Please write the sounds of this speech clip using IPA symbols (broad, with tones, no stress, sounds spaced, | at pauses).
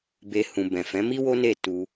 b e˧ h ũ˨ b ɛ̃˨ f ɛ̃˨˦ m i˦ w o˦ n e˦˨ t u˧